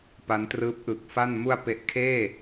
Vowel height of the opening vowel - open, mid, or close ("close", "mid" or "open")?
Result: open